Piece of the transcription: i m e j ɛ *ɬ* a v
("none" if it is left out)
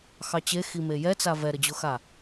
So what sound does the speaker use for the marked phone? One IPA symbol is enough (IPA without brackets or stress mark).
t͡s